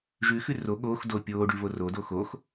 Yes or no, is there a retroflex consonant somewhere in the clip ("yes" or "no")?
yes